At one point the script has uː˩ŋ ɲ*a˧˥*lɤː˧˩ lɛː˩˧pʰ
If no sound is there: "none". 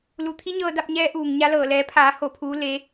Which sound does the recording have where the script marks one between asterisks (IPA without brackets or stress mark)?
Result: a˧˥